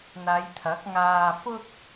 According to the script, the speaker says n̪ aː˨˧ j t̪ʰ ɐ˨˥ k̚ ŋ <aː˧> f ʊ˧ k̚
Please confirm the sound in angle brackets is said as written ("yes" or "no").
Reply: yes